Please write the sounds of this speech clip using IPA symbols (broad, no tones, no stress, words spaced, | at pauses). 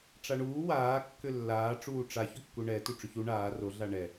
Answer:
ʈ͡ʂaɳuː waːkːʏ lːaː ʈ͡ʂuːʈ͡ʂaçʏkːu ɳɛ tuʈ͡ʂʏçu ɳaː roɮa ɳɛ